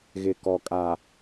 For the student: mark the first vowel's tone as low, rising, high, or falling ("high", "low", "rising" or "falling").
low